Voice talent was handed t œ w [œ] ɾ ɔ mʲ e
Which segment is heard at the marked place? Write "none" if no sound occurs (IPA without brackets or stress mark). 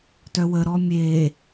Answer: ə